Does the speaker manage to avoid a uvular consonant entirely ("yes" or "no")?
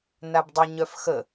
yes